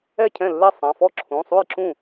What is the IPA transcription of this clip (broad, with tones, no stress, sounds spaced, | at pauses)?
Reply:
ɛ˥˩ cʰ ɛ̃˥˩ lː ɛ˥˩ sˤ ã˩˧˩ f ɔ˥˩ ǁʰ ũ˩˧˩ sˤ u˥˩ j ǁ ũ˥˩